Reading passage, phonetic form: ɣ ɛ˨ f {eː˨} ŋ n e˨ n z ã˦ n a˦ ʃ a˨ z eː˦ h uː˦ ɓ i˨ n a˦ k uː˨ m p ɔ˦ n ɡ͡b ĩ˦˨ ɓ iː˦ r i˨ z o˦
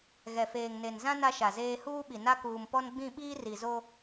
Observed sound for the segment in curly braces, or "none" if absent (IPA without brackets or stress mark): eː˨